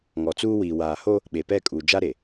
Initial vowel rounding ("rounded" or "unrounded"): rounded